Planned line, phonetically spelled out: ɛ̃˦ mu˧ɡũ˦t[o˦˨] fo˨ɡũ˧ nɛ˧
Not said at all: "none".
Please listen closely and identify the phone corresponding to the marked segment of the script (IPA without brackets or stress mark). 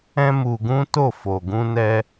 o˦˨